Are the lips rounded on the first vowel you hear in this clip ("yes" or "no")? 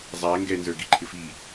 no